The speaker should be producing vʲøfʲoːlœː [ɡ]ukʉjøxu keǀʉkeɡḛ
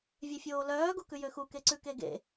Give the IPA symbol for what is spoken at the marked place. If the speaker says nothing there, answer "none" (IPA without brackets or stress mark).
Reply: ɡ